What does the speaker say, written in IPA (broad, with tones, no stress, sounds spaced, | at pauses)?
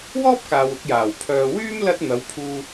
w ɔː˥ p̚ k aː˨ w ʊ˧ k̚ j aː˨˩ w pʰ œː˨ w yː˥ m l ɐ˧ t̚ n̪ ɐ˨˧ w pʰ uː˧